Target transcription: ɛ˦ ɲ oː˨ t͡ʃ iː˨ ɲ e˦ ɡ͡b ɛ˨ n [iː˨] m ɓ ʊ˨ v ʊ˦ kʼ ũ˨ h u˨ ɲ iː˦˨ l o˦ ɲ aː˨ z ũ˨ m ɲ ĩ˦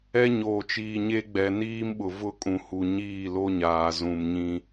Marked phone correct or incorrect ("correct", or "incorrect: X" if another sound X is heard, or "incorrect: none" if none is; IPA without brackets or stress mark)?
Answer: incorrect: iː˦